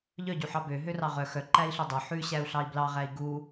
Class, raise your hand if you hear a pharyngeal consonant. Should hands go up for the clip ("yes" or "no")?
yes